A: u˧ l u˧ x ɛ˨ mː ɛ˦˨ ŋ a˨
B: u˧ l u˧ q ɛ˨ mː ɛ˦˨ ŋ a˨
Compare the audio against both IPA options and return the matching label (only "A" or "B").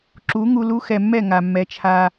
A